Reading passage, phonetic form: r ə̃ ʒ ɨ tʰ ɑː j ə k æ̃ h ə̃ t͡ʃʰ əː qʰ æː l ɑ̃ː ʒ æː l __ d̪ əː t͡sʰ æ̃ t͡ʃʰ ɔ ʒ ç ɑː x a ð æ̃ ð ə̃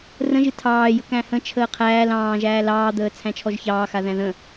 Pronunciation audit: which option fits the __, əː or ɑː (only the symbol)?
ɑː